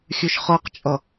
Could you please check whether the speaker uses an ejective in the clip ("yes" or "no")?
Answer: yes